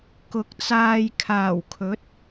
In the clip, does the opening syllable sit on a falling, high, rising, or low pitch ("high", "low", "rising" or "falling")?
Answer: rising